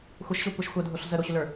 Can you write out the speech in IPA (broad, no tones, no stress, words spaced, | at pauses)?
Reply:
xʷəʃɕokʷɛʃ xʷədʱoɬ zəɾoɕʏlə˞